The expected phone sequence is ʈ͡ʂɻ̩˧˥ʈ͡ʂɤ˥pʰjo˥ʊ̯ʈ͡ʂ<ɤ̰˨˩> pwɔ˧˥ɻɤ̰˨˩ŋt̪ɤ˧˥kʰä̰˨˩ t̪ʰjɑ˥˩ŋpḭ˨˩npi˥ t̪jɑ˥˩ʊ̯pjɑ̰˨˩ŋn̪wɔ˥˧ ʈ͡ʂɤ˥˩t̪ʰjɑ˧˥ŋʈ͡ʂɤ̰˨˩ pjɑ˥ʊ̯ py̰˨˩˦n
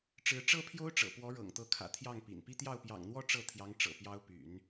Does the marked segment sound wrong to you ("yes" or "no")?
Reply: no